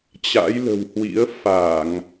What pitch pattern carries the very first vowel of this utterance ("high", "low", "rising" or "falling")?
rising